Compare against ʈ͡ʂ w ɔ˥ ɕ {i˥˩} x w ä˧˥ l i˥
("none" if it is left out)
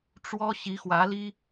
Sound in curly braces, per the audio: i˧˥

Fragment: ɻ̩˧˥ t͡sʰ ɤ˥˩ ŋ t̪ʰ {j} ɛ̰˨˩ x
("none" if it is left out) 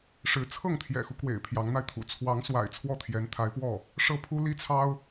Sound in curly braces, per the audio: j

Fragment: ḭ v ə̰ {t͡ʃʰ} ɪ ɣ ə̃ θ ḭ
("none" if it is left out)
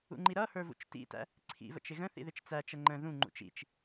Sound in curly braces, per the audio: t͡ʃ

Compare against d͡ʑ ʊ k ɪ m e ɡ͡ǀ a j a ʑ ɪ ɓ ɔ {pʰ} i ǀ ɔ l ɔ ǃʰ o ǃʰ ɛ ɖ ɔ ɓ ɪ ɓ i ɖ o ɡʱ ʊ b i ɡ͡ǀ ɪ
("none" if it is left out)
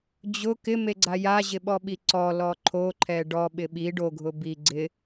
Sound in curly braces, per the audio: ɓ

